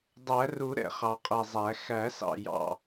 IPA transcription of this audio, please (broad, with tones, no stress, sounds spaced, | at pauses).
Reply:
dˤ æ˨˩˦ r u˨˩˦ ɾ ɛ̰˨˩ χ ɑ˨˩ qʼ ɛ˨˩ zˤ æ˨˩˦ x æ˨˩˦ s ɑ̰˨˩ j ɑ̰˨˩